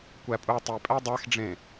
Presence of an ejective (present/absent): present